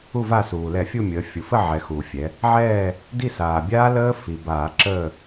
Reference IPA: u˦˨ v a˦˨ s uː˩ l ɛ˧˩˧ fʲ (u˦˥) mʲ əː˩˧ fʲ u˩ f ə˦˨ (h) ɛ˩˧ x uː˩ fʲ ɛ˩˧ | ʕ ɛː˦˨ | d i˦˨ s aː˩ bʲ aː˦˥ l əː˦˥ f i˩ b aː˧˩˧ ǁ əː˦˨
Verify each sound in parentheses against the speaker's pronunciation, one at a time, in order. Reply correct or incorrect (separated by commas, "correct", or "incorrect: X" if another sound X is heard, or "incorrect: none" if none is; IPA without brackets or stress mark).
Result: incorrect: u˦˨, incorrect: ʕ